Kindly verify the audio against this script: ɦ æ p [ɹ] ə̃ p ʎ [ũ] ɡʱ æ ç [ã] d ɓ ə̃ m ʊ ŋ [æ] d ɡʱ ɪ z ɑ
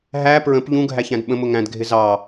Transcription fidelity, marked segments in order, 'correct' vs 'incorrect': correct, correct, incorrect, incorrect

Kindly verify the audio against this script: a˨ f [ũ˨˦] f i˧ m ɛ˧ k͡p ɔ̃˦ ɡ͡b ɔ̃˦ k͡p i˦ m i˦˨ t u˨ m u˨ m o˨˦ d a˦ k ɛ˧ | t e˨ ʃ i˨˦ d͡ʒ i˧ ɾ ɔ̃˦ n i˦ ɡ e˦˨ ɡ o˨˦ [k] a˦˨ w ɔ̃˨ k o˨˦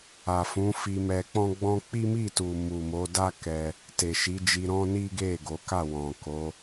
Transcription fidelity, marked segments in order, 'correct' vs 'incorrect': correct, correct

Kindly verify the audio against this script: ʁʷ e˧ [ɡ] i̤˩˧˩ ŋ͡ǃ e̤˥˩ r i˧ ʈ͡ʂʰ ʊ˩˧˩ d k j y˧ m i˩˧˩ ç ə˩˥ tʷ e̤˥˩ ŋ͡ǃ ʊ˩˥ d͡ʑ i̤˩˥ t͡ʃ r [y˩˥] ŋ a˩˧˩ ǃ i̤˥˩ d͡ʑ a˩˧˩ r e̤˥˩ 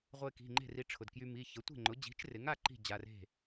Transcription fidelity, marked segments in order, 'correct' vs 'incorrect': incorrect, incorrect

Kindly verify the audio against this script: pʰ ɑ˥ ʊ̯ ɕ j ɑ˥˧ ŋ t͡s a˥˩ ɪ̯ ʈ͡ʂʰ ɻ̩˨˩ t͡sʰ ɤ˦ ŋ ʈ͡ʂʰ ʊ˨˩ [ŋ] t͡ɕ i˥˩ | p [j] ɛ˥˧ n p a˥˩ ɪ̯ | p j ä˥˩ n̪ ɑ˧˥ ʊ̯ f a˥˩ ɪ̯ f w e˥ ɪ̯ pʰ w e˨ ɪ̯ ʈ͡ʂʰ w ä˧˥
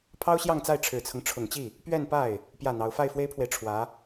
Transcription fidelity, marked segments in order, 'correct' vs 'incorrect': correct, incorrect

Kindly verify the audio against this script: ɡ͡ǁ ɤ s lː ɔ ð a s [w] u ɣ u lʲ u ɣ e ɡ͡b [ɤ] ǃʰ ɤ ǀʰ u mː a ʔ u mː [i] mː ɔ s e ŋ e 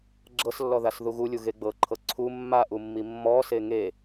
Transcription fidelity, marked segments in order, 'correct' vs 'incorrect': incorrect, correct, correct

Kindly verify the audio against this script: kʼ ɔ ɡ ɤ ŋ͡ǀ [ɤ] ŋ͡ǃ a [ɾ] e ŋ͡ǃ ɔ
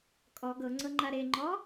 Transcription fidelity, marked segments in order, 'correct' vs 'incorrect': correct, correct

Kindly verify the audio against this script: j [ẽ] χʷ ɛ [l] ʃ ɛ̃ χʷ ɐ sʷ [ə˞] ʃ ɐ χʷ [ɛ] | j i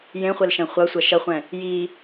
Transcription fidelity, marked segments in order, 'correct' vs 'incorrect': correct, correct, incorrect, incorrect

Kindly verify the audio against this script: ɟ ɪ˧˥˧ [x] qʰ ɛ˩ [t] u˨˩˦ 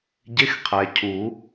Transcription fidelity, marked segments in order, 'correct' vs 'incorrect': correct, incorrect

